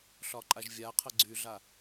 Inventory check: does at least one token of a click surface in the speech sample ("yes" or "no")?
yes